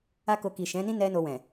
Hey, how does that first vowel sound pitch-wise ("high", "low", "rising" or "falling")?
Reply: high